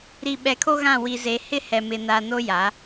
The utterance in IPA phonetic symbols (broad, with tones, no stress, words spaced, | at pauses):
ɾi˨ɓɛ˨kʰo˦ ɣã˦˨ wi˨ze˨hɪ˦hɛ˨ mɪ˨na˨ no˦ja˨˦